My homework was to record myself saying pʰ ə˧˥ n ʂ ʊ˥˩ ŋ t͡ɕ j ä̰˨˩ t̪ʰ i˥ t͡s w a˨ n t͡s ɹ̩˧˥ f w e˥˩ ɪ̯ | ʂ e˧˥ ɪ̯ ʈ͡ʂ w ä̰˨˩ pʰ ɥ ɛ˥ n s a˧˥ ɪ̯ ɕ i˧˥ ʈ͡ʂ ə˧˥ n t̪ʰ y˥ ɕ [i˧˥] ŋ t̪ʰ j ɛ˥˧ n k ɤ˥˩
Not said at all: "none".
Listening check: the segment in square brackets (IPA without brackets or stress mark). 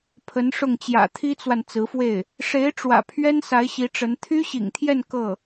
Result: ḭ˨˩